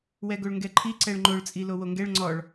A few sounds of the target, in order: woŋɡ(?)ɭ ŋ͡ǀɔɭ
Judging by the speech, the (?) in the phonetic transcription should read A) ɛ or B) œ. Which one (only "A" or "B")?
A